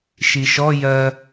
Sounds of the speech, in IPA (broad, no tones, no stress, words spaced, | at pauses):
ʃiʃɔ jɜ